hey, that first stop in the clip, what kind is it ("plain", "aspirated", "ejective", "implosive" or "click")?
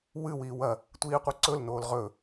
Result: plain